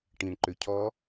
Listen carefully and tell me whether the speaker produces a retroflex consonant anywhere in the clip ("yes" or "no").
yes